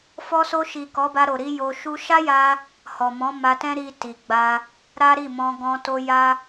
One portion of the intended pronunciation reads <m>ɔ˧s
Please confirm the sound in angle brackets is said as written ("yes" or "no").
no